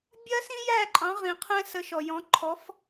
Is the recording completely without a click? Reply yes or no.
no